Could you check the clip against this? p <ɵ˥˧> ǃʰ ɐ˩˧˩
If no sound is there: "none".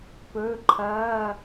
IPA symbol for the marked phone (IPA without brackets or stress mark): ɵ˩˧˩